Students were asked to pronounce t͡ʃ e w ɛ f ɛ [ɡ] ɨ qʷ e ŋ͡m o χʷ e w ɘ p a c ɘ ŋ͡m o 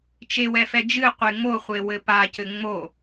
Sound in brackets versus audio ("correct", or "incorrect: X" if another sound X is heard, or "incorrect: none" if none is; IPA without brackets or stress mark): incorrect: d͡ʒ